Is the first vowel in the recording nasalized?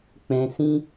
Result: yes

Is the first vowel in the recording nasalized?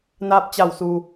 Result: no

